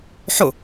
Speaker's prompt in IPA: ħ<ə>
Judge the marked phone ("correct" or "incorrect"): incorrect